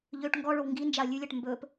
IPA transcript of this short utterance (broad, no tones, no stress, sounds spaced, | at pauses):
ʎ ø ʈ ŋ ɡ ɔ ɭ o w ŋ ɡ i n d͡ʒ a ɐ̯ lʲ ʉ lʲ ɜ ʈ m b ɵ p